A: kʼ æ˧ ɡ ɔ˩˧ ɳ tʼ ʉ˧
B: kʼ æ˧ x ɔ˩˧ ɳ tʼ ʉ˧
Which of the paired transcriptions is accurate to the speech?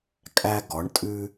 A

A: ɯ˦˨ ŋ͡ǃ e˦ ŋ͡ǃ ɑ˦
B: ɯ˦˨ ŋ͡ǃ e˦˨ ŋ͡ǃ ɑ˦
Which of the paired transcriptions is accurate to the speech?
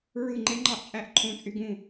A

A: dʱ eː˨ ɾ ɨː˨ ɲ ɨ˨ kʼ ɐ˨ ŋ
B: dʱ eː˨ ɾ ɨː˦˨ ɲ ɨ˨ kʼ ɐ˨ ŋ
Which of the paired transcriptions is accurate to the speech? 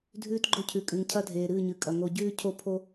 B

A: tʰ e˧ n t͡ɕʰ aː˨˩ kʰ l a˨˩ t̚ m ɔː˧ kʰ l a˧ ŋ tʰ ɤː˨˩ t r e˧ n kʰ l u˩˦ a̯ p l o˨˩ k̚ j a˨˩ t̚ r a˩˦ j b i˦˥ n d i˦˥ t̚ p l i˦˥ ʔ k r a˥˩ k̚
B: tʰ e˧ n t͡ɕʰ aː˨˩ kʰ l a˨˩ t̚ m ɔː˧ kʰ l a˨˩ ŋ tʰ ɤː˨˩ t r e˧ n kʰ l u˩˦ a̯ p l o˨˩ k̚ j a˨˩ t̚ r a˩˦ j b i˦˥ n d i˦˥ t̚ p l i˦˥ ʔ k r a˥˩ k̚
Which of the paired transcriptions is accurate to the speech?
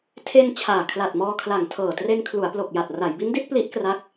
B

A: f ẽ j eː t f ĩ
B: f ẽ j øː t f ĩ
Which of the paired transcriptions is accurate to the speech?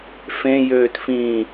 B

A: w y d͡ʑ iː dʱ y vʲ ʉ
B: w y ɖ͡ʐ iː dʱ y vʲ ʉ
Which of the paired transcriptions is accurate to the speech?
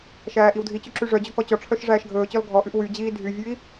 A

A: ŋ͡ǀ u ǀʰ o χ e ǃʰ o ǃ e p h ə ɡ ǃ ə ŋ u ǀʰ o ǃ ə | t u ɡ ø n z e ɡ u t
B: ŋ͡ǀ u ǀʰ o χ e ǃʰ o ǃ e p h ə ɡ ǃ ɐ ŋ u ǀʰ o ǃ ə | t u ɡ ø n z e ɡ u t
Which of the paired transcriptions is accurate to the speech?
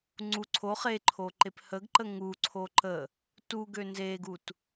A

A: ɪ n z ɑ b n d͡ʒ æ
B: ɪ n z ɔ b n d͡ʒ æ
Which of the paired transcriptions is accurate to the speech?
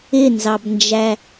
A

